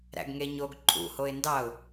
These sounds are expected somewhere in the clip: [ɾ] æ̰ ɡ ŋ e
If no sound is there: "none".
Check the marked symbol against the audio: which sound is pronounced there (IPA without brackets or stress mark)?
ɾ